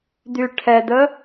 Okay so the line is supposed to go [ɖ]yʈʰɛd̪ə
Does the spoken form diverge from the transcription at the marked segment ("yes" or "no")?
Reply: yes